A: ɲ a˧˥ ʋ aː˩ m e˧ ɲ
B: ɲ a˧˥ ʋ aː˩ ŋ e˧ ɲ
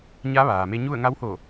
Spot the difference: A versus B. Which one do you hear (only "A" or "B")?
A